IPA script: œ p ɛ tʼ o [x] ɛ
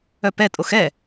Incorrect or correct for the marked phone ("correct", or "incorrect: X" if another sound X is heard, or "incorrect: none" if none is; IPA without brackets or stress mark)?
correct